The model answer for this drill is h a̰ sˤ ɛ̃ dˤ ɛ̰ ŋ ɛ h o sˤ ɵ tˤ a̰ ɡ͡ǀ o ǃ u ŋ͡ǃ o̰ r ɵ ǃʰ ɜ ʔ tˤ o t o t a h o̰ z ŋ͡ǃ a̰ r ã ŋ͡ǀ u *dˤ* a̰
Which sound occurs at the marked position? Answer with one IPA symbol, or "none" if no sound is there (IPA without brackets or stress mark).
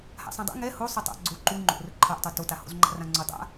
dˤ